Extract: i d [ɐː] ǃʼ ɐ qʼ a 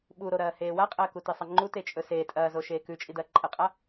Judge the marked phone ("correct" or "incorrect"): correct